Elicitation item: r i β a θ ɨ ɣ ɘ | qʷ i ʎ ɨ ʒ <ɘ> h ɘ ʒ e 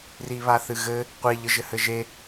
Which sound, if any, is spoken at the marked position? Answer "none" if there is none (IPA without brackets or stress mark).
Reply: ɘ